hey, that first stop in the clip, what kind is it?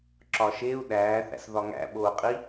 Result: click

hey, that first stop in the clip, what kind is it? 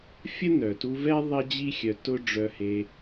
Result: plain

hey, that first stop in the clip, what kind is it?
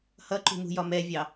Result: click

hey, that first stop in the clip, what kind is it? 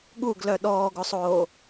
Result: implosive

